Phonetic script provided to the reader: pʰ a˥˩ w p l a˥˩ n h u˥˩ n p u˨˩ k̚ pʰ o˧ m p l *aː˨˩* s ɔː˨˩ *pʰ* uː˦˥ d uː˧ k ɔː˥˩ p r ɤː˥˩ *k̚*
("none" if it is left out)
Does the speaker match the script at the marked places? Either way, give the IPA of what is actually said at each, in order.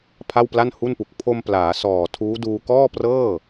aː˩˦, tʰ, none

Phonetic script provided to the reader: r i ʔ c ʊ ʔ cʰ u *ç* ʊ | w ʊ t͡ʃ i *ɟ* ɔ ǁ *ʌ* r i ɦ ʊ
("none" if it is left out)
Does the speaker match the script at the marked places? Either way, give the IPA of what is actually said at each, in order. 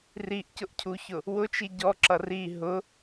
ç, ɟ, ʌ

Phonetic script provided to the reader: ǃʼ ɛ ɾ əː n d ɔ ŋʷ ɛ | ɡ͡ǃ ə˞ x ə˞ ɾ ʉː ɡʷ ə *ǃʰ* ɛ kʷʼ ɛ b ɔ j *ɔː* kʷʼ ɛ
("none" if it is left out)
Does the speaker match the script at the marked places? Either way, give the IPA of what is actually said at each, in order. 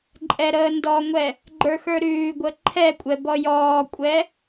ǃʰ, ɔː

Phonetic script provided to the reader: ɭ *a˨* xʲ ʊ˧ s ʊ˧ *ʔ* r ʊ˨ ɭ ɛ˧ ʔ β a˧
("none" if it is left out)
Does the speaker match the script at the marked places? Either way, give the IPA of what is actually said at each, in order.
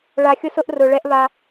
a˨, ʔ

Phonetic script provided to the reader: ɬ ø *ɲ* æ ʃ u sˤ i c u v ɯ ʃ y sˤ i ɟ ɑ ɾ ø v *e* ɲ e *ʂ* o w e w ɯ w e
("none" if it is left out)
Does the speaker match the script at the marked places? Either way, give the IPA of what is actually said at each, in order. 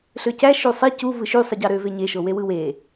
c, e, ʃ

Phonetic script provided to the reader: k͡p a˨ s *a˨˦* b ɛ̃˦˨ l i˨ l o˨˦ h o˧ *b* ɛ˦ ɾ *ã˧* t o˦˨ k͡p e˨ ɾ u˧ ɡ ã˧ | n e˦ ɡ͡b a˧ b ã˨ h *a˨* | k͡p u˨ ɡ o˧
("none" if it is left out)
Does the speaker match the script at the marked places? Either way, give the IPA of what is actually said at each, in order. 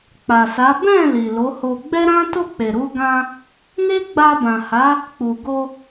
a˨˦, ɡ͡b, ã˦, a˨˦

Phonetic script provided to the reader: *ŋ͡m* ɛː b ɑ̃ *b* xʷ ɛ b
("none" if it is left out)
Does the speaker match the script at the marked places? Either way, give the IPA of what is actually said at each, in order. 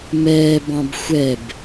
m, b

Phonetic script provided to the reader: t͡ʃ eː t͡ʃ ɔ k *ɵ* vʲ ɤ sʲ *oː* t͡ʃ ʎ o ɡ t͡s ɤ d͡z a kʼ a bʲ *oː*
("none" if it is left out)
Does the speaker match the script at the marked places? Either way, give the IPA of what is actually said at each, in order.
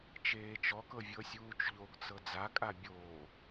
ɤ, uː, oː

